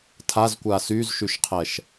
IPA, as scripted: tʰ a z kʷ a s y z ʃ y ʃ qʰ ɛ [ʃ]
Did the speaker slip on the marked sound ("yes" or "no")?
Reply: no